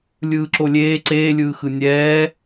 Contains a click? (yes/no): yes